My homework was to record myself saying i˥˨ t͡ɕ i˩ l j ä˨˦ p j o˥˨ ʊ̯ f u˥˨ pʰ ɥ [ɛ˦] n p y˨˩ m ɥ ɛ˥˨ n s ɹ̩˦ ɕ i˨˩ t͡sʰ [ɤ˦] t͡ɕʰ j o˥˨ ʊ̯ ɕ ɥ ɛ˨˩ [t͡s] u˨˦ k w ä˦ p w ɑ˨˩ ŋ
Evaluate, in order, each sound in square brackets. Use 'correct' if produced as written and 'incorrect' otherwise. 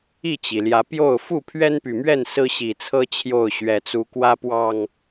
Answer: correct, correct, correct

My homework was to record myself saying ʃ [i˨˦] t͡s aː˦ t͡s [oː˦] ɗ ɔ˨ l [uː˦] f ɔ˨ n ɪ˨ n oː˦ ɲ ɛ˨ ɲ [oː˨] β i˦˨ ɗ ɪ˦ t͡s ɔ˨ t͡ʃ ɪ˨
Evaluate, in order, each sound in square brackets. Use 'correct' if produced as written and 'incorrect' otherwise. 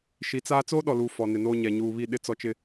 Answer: correct, correct, incorrect: uː˨, incorrect: uː˨

